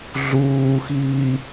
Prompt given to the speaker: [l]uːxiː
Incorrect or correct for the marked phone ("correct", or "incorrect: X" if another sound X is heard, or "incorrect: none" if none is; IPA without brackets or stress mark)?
incorrect: ɮ